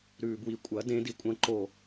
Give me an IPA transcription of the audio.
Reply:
ɾ ʉː b w i kʷʼ ɐ d ẽ d i kʷʼ ɐ̃ ǃ o

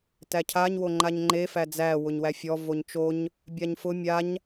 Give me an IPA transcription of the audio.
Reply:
t æ cʰ a ɲ w o ŋ͡ǃ a ɲ ŋ͡ǃ e f æ d͡z æ w ʊ ɲ w æ fʲ ɔ v o ɲ t͡ʃ o ɲ | bʲ a ɲ f ʊ mʲ a ɲ

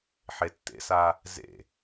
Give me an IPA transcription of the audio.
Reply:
ħ e tː ḛ s a | z ḛ

